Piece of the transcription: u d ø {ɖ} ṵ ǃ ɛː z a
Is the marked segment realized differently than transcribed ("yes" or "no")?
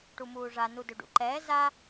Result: no